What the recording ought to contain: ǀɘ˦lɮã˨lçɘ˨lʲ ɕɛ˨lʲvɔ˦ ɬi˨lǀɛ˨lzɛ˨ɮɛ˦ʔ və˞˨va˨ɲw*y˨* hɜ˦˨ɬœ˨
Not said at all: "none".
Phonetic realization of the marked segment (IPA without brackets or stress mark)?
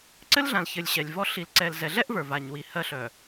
i˨